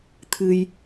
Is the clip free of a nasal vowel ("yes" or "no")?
yes